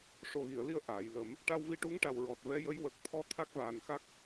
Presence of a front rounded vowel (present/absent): absent